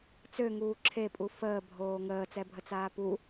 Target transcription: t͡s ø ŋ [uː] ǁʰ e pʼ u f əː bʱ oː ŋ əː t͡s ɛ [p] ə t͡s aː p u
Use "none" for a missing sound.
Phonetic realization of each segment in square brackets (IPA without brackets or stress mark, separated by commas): uː, bʱ